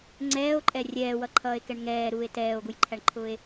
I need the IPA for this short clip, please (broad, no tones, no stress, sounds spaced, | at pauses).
ŋ͡ǀ ɛː o̯ ǃʼ ɛ rʲ ɛː w ʌ ǃʰ ʌː e̯ k ɛ ɳ ŋ ɛː ɾ uː e̯ t ɛː o̯ ɡ u j ǃʰ æ ɳ ǃʰ ʊː e̯